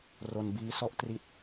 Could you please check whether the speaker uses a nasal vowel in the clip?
no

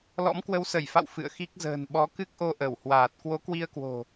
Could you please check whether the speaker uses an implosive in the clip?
yes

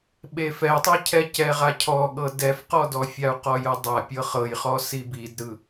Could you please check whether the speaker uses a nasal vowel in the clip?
no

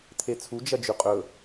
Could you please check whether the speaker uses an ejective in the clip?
yes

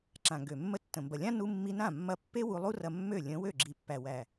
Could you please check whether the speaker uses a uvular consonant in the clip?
no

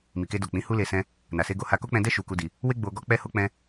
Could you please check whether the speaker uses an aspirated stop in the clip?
no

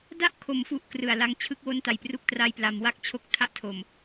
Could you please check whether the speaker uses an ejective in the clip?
no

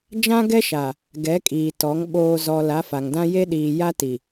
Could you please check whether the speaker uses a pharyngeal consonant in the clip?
no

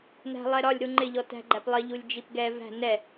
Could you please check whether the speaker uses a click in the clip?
yes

